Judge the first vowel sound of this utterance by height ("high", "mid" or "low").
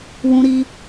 high